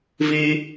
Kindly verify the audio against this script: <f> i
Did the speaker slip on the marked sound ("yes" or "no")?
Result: yes